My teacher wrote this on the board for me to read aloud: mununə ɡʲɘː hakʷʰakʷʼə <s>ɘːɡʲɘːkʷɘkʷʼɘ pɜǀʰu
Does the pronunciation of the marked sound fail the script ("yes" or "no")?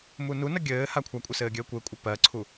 no